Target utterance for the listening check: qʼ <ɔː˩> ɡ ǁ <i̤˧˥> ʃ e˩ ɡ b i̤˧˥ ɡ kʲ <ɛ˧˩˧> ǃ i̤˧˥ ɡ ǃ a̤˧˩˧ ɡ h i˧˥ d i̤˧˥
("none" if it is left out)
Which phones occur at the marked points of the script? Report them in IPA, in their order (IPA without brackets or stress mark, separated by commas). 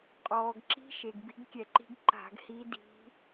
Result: ɔː˩, i̤˧˥, ɛ˧˩˧